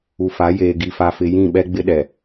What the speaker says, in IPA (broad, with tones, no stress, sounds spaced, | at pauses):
u˨ f a˨˦ j eː˨ ɡ i˨ f a˨ f ɪ˨ j ĩ˦˨ ɓ ɛ˦ ɡ͡b ɪ˦ ɗ ɛ˨